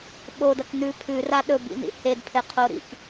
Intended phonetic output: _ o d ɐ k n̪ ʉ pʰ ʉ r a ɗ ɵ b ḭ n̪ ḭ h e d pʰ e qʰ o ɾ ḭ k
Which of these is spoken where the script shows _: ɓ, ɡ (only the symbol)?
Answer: ɓ